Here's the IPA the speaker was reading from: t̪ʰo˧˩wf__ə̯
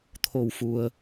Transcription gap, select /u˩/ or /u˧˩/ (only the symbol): u˩